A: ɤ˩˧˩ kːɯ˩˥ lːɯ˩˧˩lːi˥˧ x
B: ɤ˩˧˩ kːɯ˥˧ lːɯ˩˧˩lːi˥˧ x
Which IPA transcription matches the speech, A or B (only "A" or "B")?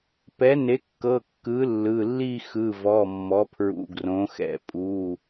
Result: A